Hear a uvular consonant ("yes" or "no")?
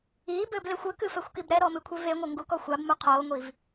yes